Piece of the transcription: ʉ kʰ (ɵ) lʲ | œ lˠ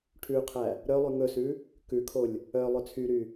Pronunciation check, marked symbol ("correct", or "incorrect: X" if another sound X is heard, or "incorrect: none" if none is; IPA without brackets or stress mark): incorrect: o